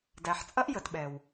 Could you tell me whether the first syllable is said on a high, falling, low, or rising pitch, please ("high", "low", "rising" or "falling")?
low